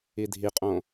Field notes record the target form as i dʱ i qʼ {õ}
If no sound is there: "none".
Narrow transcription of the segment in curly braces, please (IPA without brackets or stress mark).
õ